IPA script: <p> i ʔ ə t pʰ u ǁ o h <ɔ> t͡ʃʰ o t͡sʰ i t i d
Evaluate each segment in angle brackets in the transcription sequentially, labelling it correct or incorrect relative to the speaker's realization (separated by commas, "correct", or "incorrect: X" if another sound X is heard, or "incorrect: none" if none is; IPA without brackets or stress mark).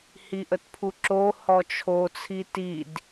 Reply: incorrect: h, correct